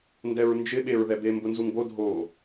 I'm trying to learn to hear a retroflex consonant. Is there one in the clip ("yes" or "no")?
no